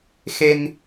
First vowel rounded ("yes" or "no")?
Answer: no